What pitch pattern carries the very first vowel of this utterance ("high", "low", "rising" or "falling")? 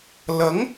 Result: rising